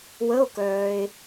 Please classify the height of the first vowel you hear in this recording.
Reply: mid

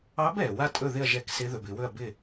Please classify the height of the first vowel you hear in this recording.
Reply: low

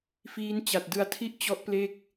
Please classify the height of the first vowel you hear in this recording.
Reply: high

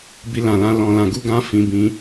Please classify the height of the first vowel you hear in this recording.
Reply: high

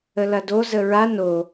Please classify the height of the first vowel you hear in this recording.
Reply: mid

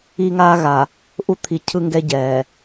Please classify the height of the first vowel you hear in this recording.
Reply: high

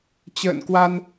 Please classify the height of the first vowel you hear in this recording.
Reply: mid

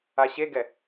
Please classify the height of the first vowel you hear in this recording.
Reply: low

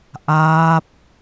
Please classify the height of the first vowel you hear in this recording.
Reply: low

